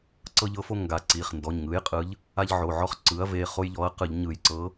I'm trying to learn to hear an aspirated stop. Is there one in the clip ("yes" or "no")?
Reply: no